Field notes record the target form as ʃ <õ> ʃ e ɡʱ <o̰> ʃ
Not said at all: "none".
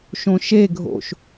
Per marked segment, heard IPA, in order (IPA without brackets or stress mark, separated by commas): õ, o̰